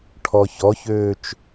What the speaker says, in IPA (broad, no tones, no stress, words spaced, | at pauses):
ʈʰɔçɔçøːt͡ʃ